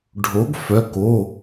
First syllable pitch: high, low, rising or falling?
rising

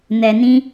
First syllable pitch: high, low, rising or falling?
low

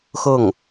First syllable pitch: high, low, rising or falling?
falling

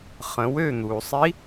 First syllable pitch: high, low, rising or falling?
rising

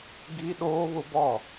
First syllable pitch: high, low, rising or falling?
high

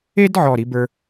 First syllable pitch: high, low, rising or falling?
high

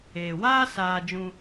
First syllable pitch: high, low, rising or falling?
low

